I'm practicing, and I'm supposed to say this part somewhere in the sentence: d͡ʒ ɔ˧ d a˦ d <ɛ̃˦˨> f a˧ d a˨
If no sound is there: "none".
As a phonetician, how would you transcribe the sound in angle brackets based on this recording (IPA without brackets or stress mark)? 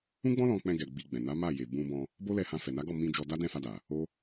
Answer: ɛ̃˦˨